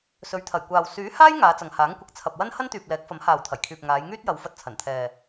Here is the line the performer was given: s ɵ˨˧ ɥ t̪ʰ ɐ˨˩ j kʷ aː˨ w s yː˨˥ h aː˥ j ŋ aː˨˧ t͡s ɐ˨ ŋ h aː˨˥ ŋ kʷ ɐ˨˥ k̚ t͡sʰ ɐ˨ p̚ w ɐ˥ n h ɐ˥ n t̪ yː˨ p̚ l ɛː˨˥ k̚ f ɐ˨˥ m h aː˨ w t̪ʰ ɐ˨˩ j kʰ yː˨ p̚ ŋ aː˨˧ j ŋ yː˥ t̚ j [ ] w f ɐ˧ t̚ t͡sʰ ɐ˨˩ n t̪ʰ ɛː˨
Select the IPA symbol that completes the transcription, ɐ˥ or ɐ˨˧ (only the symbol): ɐ˨˧